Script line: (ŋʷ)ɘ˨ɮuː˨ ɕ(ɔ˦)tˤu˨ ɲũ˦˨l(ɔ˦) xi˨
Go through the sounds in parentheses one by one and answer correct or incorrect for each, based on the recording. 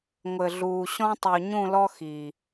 correct, incorrect, correct

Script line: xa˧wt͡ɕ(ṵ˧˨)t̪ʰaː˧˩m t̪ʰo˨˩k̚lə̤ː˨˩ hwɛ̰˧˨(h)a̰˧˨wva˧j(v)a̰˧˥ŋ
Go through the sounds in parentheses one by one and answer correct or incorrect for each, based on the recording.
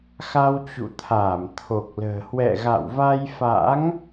correct, incorrect, incorrect

